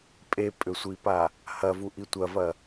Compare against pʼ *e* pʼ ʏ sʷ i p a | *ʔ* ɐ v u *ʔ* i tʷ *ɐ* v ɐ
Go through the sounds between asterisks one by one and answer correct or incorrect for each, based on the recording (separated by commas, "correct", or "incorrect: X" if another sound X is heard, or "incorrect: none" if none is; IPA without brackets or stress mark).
correct, incorrect: h, correct, correct